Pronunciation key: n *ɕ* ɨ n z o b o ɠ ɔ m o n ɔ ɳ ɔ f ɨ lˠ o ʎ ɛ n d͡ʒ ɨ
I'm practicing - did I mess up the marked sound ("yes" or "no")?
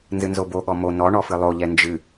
yes